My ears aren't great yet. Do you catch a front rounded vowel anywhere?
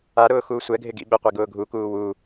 no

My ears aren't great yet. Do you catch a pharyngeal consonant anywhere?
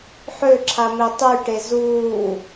yes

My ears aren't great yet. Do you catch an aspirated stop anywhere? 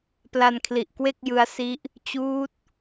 yes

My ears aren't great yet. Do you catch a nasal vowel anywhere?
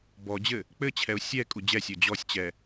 no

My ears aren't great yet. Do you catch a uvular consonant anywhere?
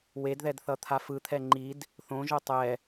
no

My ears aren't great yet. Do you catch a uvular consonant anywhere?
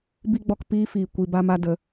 no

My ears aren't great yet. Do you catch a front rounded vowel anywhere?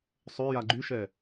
yes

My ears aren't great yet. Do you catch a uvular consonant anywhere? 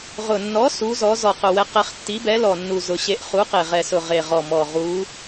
yes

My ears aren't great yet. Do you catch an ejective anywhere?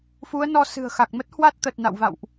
no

